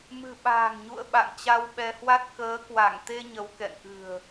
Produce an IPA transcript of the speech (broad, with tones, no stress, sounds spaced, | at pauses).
m ɨ̤˨˩ ɓ a̤ː˨˩ ŋ ɲ ṵ˧˨ ə̯ ɓ a̰˧˨ ŋ t͡ɕ a˧ w ɓ ɛ˧ h w a˦˥ t̚ k əː˨˦ k w a˧˩ ŋ t̪ e˧ ɲ ə˨˦ w k ɛ̰˧˨ n ʔ ɨ̤˨˩ ə̯